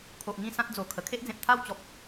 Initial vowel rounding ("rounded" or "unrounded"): rounded